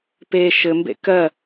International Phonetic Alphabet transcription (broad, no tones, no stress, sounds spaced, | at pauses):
p e ʃ ɘ m b ḛ k ɜ